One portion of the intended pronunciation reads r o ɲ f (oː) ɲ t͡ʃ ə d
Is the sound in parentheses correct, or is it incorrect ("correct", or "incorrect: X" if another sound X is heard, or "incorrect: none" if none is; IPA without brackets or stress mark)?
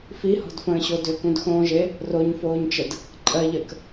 correct